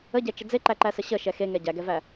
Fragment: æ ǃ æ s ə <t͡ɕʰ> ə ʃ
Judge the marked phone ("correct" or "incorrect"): incorrect